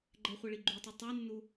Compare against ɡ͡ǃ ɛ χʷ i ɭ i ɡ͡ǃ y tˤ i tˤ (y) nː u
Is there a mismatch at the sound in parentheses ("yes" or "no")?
no